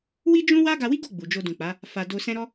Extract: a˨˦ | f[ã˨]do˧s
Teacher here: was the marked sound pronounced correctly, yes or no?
no